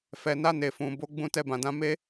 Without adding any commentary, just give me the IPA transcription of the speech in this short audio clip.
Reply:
f ɛ˨ n a˧ n e˨ f ũ˨ b o˨˦ ɡ͡b ũ˦˨ t ɛ˧ b ã˨ d ã˧ m e˦

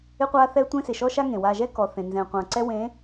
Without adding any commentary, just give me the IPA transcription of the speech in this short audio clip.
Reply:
ɪ˦ qʷ a˦ θ ɛ˦ tʷ ẽ˦ s ɪ˨ ʃ ɔ˦ ʃ a˦ ŋ ẽ˨ w a˨ ʒ ɛ˦ k ɔ˨ θ ẽ˨ n z ɛ̃˨ qʷ ã˨ ǀ ɛ˦ w ẽ˨˦

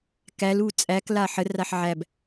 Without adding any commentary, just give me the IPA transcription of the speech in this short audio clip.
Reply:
k æ l u t͡sʼ æ k l a ħ ə r a ħ ʕ æ b

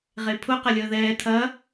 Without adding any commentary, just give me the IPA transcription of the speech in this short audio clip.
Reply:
ʁ e pʰ ʊ q ɐ lʲ əː ð ɛː tʰ ɐ

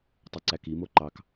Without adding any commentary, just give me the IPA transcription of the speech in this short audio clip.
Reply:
tˤ ɯ ǀ æ k i m o ǃ ɑ k

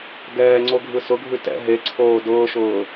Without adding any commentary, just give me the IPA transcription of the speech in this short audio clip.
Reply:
ɡ ɛː ŋ͡ǀ o ɡʱ ɯ s ʊ ɡʱ ʉ t ɛ̰ ɦ e ǀʰ oː d ʊː ʃ ʊː

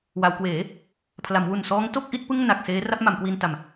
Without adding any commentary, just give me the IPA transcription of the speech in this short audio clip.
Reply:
w a˩˦ w k w eː˩˦ | pʰ l a˩˦ m w u˨˩ n s ɔː˦˥ ŋ t o˥˩ k̚ ʔ i˦˥ t̚ p ɯ˥˩ ŋ n a˨˩ k̚ s eː˦˥ r a˦˥ p̚ m a˩˦ m k w i˧ n t a˨˩ m

